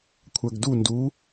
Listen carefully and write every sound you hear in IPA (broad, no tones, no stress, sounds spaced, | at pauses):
kʷʰ æ ɡ d u n d u